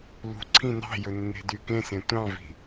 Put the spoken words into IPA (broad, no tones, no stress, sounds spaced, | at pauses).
l ṳ ǀʰ ĩ n ɑ̤ j ɵ nː e̤ d y k ẽ s ẽ tʷ ɑ̃ v i̤